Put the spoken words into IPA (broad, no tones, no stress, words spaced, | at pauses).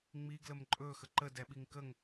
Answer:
ŋ͡miɡləm ǃʼɵxə ǃədɛɓiŋ kəŋ